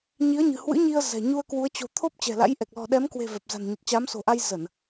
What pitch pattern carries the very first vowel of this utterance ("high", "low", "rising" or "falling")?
rising